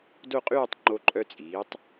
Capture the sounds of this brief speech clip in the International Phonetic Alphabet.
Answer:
do˥˧qʼyː˥˧tˤ ŋ͡ǃo˧ǃʼœ˧t͡sʼiː˩˧tˤ

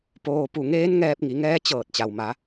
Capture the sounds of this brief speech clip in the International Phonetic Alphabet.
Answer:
poː˧ pu˧˩ŋeː˧˥n ŋɛː˧p̚ŋi˩˧ŋɛː˧˥ t͡ɕɤː˧˩t̚ t͡ɕa˩wma˩˧

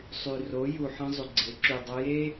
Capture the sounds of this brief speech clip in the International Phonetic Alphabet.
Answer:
sˤy˨ro˨˦ ju˨ħɐ̃˧ zˤy˨ɡ͡ǀe˨˦ ǁy˨dˤɐ˧ je˦

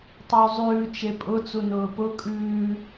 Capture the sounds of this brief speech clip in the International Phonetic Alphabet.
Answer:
tˤeu̯zˤʉː t͡ʃepʼʊ t͡sunʊːpʊ kʼʉː

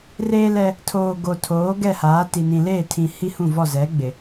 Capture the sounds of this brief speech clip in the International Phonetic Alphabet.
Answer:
reː˦lɛ˦ | tʰoː˨ ɡo˨tʰoː˨˦ ɡɛ˦˨haː˨˦ti˨ nĩ˨leː˦˨tʰĩ˨ hi˦hũ˦˨vɔ˦˨ zɛ˨˦ ɡ͡bɪ˨

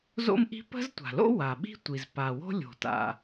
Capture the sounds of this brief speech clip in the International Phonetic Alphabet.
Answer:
zo̰˥mʔi̤˥ pə̤˥ztʷa̤˩lo̰˥ wa˩ɓi̤˥ tʷi˩zpa˩wo̤˥lʲo̤˩ ta̰˩

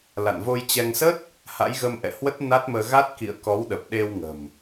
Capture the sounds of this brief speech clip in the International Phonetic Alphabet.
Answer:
la̰˧˨nvo˧jt͡ɕɛ˧ŋ sə˦˥t̚ | ha̰˧˥jɣə˧mʔɛ̰˧˨hwə˦˥t̚ na˦˥t̚məː˧ ɣa˦˥t̚kḭ˧˨ə̯ kɔ˨˦w ɗə˨˩p̚ɗe˧wŋə̤˨˩m

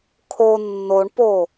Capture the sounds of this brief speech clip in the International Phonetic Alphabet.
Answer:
kʰo nːoɳpo

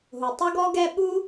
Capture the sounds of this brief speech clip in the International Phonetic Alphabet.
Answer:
ɦʊ˩tˤʌ˥ɡɔ˥ɡɛ˥ ɓu˥

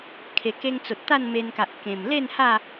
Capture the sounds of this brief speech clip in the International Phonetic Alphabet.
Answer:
kʰe˨˩ke˧ŋt͡so˨t̚ t̪a˥˧nme˧nka˨ʔ kẽ˨˩m le˥˧nha˥˧

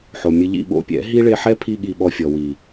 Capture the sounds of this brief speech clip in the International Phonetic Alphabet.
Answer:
ħo˨mʲɨ˧ ʎḭ˦˨ɓo̰˧pʲɛ̰˨˦ ɦi˦ ɭe˧ħɛ˦ pʰi˦ɠi˧ɓɔ˧fʲɔ˨ wi˨

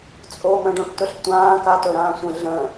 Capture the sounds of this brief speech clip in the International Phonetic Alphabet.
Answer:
t͡sʼo mə̃ɖõʈtɵɬtʷãː katɵɾãːsʷə̃ ɮə̃

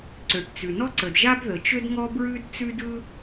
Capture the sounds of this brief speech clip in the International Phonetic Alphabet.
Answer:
ǀø˩ʈt͡sʉ˩nɔ˥ ǀə˩dʒa˥bðə˩t͡ʃø˥d ŋɔ˥bɹʉ˥d t͡sʉ˥dɯ˥

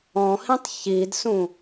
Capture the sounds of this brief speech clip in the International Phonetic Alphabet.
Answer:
ɔ̃hĩtˤ çidsũ

